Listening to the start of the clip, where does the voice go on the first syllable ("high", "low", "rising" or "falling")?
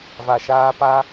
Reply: low